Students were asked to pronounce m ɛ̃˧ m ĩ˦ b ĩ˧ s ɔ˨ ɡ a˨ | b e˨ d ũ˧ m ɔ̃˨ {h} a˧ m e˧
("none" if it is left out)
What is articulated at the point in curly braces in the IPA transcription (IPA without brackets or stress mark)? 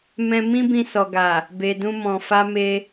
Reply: f